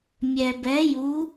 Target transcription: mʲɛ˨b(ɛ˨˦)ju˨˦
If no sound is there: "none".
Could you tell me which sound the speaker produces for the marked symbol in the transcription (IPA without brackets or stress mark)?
ɛ˨˦